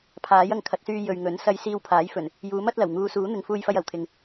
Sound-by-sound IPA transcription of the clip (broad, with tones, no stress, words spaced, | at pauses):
pʰaː˨˥jɐ˧ŋkʰɐ˨˥t̚syː˧ jɵ˨ɥŋɵ˨˥nsɐ˧j siː˧wpʰaː˨˥jfɵ˨˩n | juː˨˥mɐ˨˥t̚lɐ˨˩w ŋuː˨˧suː˨˥n̪ɪ˨˧ŋ fuː˧jfɐ˧j ɐ˨˩wt̪ʰɪ˨ŋ